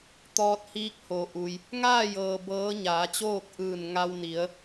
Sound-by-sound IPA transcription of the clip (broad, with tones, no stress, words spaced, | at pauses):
t̪ɔː˧t̚hiː˧˥k̚ho˩ʔu˩j | ŋaː˥˨jɤː˩ bɤː˧˥ɲaː˩˧t͡ɕoː˥˨k̚ ʔɯː˧˩n ŋa˧wni˩˧ə̯